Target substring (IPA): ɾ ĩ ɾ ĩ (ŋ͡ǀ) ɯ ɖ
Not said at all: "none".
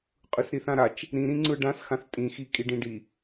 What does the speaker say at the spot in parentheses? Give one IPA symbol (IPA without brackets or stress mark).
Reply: ŋ͡ǀ